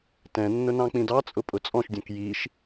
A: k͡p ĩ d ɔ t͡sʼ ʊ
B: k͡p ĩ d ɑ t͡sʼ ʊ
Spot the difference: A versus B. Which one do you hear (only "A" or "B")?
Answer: B